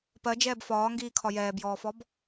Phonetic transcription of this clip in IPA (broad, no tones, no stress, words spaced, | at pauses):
pɜd͡ʒɛːb fɒːŋɡiːkʰɒ jɛːbjɔːfɔb